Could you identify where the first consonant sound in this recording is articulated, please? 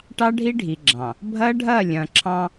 retroflex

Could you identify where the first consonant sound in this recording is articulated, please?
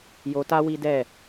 palatal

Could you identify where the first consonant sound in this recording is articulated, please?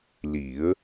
alveolar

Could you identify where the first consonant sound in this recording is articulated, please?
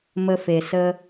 labial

